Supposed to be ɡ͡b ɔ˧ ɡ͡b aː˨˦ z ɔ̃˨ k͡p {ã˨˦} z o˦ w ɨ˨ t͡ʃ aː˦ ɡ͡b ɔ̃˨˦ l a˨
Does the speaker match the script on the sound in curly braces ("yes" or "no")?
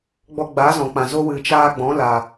no